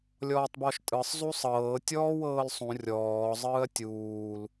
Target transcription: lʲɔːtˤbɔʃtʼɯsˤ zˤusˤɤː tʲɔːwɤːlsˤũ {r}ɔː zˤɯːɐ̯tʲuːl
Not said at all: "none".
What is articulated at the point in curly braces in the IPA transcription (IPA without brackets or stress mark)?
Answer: rʲ